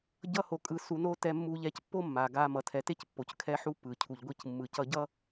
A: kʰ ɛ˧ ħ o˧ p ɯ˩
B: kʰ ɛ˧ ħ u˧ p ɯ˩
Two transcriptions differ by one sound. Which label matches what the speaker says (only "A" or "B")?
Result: B